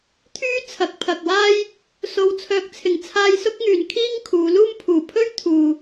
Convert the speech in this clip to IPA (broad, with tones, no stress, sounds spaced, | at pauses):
t̪ʰ yː˥ t͡sʰ ɐ˨˥ k̚ pʰ ɐ˨ k̚ w aː˥ j | s o˨˧ w t͡sʰ œː˨˥ k̚ t͡sʰ ɪ˨˩ ŋ t͡sʰ aː˧ j s ʊ˥ k̚ ŋ yː˨ n kʰ iː˥ ŋ kʰ uː˨˧ l uː˥ m pʰ uː˨˩ pʰ ɵ˥ ɥ t̪ʰ uː˨